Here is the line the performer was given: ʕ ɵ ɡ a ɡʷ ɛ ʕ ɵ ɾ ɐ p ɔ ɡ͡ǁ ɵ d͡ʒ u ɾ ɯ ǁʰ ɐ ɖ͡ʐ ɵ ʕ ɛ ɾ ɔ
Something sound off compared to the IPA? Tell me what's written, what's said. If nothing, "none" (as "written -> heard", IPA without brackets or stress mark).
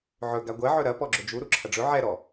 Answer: ɯ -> u